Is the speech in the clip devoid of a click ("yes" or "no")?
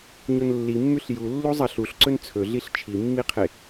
no